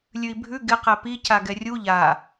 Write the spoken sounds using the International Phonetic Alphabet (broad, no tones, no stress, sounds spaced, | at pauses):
lʲ ʉ i̯ bʱ ʉ ɡ ɪ q ɛ p i c a ɡ ɛ rʲ u ʎ a